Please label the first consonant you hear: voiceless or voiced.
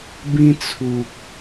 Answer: voiced